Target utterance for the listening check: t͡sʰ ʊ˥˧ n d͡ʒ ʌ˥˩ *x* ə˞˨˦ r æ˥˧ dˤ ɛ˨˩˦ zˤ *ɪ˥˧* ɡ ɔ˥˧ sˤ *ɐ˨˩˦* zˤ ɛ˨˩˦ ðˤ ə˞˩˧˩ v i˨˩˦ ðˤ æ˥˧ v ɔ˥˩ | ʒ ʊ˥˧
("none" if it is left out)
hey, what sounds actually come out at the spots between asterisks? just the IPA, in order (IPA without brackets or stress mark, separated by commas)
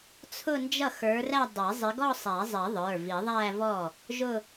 x, ɪ˨˦, æ˨˩˦